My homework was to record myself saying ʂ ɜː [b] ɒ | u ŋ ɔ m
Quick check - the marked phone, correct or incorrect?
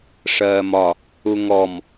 incorrect